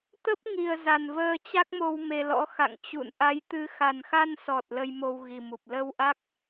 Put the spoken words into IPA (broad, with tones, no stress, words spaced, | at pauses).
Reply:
t̪ə˦˥p̚ŋi˨˩ə̯ za˨˩nvəː˧t͡ɕa˦˥k̚mo˧w me˧lɔ̰˧˥ xa̰˧˨ŋt͡ɕṵ˧˨n ʔa˨˦jt̪ɨ˨˦ xa˨˩nxa˧nsɔ˨˩t̚ lə˧jmo˧wɣi˨˩mu˨˩p̚ lə˧w ʔa˦˥k̚